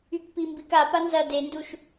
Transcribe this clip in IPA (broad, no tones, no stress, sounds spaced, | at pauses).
y k p i m b i k a p a n z ɐ d e n d u ʃ